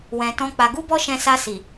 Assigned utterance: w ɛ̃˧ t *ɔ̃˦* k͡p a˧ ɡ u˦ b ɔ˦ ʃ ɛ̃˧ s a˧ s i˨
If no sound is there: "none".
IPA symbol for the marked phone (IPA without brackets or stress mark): ɔ̃˦